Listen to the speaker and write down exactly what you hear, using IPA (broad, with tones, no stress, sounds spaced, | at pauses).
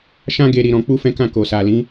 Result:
ʃ ã˦ ɡ e˧ ɾ i˧ ɾ ɔ̃˧ k͡p u˦ f ɛ̃˦ k ã˦˨ k o˨ s a˨ l ĩ˨˦